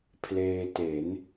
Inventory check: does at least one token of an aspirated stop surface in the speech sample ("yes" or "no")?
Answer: yes